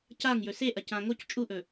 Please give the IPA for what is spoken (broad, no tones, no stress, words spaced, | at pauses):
caŋjɵ seʔɐcã ŋoc t͡ʃʼuʔɵ